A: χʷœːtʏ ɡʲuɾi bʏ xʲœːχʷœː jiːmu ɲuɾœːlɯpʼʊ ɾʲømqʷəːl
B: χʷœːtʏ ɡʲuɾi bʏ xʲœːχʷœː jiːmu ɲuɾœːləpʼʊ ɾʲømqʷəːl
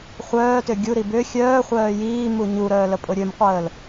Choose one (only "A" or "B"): B